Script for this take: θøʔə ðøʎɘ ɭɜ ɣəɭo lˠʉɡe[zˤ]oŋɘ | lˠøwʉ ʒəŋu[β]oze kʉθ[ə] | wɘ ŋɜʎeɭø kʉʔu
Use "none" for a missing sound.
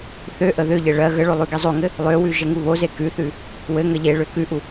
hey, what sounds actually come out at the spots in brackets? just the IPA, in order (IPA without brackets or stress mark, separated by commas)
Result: zˤ, β, ʉ